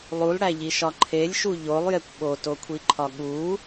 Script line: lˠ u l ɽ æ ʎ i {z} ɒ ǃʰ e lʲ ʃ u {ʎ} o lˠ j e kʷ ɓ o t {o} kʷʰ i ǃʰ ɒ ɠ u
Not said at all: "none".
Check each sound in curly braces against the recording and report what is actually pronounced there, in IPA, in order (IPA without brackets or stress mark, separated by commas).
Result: ʃ, ʎ, o